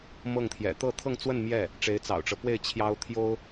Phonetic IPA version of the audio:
mɤ˥˩ŋt̪ʰjɛ̰˨˩ t̪ɤ˥˧ t̪ʰɤ˥˧ŋt͡swə˥˧n mjɛ˥˩ | ʈ͡ʂe˧˥ɪ̯t͡sɑ̰˨˩ʊ̯ʈ͡ʂɤ˦pwe˥˩ɪ̯ t͡ɕʰjɑ˥ʊ̯ t̪ʰjo˥ʊ̯

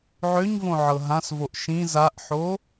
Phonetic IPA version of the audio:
ʕøɲvõʕɤ ɦãsvoʔ ʃĩ zaʔħo

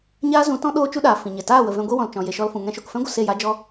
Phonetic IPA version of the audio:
ɲaː˦zũ˨˦tɔ̃˦ ɗoː˦t͡ʃu˦ɗaː˨ fĩ˨ɲɛ˨ taː˦˨wə˨vɛ̃˧ ɡʷi˧wɔ̃˨l t͡ʃɔ̃˨ je˨ʃɔ˧lfũ˨ ŋɛ̃˧ʃo˨kfɛ̃˦ɡʷə˨ se˦˨ja˦d͡ʒɔ˦

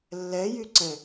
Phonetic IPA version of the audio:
lːɛjyǀɛ̃

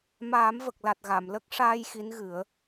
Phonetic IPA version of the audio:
maː˨˩˦mvə˨˩k̚la˨˩t̚ ɣa˨˩˨mlə˦˥k̚ʂaː˧j xi˧˥nɣɨ˨˩˦ə̯

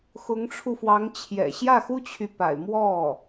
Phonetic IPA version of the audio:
xʊ˧˥ŋʈ͡ʂʰu˧fwɑ˧˥ŋt͡ɕʰjɛ̰˨˩ ɕjä˥˩xu˥t͡ɕʰy˨pa̰˨˩ɪ̯ mwɔ˥˩

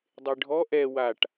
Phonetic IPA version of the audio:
dˤeɖʱɔ ʔɛ waʈ

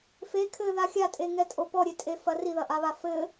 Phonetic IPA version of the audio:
fe kʰɘða xʲatʼeŋɛtʼo pɔɾʲetʼefɐ riðɐʔaβa fɘ

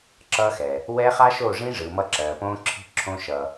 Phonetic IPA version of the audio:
ǁʌː˧xɛː˨ | wɛ˦ χa˦ʃo˦˨ ʐĩ˦ʐɯː˨mʌ˧ ǁɜː˨põː˦ǁʰi̤˦ ǁʰõ˧ ʃʌː˨

